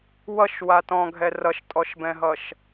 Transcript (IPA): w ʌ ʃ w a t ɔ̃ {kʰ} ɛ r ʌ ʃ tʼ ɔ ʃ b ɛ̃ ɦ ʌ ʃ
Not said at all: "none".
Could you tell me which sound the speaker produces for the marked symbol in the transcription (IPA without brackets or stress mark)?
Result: ɡʱ